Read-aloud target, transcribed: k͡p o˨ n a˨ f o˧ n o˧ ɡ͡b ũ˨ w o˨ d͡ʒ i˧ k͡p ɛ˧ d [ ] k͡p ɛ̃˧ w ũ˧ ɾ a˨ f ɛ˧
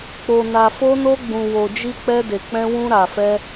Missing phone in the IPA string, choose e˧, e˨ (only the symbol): e˨